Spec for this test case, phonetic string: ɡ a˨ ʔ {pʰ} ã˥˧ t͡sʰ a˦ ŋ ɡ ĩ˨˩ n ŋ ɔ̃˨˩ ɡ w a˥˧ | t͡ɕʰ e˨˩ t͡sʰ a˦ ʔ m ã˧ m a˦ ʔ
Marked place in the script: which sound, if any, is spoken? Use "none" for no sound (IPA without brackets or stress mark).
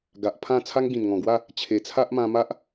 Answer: pʰ